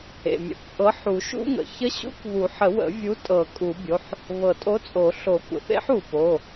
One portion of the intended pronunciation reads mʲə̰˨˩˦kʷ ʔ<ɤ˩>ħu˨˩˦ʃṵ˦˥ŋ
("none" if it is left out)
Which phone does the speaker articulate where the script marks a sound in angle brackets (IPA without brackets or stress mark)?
ɤ˨˥